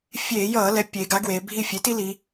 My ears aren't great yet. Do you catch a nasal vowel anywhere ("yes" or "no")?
no